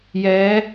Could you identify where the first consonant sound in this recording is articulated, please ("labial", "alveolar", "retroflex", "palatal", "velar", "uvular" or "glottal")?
palatal